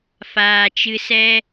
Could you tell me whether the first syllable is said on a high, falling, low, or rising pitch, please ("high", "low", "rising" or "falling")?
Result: low